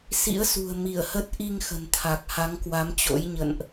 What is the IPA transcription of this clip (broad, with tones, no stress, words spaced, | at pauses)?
sḭ˧˥ə̯sṳ˨˩ə̯ mi˧˩ə̯hə˦˥t̚ ʔi˧ŋ xə̤˨˩nt̪ʰa˨˩k̚ ha˨˦ŋkwa˨˦mt͡ɕo̰˧˥j ɲə̰˧˨nʔ